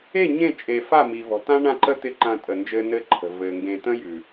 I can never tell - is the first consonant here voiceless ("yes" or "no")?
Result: no